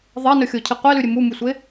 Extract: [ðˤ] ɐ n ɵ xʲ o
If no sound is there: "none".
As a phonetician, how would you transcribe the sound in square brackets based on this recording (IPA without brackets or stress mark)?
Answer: ðˤ